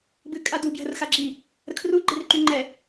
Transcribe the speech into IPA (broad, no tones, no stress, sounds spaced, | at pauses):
b ɨ kʼ a d u b j ə̤ r x a ɡ͡ǁ i | ɾ ə kʰ r u ɡ͡ǃ e r ǃ y ŋ͡ǃ ɛ